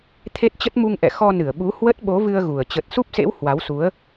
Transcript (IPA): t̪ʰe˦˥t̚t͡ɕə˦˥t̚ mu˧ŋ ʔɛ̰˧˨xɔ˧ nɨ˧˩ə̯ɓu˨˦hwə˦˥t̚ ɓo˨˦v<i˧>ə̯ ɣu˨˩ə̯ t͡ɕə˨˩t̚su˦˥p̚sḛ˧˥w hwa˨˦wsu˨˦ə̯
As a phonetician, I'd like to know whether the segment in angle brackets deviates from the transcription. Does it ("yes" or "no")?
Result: yes